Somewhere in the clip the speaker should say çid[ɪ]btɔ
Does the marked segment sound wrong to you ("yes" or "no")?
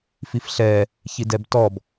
yes